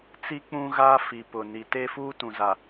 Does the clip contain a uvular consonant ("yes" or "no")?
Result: no